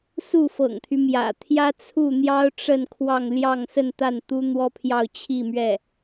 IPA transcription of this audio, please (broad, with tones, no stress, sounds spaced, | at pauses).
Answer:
s u˥˩ f ɤ̰˨˩ ŋ t̪ʰ y˦ m j ä̰˨˩ t̪ʰ j ä˥ t͡sʰ u˥˩ n̪ j ɑ˥ ʊ̯ ʈ͡ʂ ə˥˧ n kʰ w ɑ˥˧ ŋ l j ɑ˥˧ ŋ s ə˥˧ n t̪ a˥˩ n t̪ u˥ n̪ w ɔ˥ pʰ j ɑ˥˧ ʊ̯ t͡ɕʰ i˥˧ m ɥ ɛ˥˩